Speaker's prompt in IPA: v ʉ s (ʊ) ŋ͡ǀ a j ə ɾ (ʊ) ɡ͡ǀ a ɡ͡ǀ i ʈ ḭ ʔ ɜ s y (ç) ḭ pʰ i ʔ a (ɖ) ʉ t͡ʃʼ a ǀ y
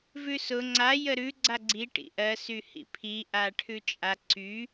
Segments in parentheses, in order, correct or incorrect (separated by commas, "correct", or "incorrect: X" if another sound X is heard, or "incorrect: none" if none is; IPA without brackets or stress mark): correct, incorrect: ʉ, incorrect: h, incorrect: ʈʰ